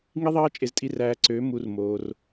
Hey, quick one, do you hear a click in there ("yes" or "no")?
yes